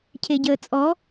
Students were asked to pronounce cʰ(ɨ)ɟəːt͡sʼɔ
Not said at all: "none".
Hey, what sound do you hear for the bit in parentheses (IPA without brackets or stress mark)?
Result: e